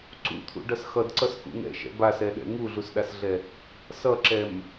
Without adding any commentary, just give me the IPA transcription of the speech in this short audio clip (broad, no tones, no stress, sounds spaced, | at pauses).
ǀ ṵ t̪ʰ ṵ ɖ ʌ s x ʌ d ǀ ʌ s k ṵ ŋ ɛ̰ ʃ ɛ̰ b a s ɛ ɗ ɛ̰ ŋ u ɮ u s ɗ a s ɮ ɛ | s ʌ ǁ ɛ m